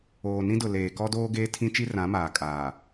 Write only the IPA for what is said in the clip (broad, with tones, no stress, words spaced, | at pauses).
oː˨nĩ˦dʊ˨ leː˨ kɔ˦doː˦ ɡeː˦tʰĩ˦t͡ʃi˦ rã˨˦ maː˨kʼaː˨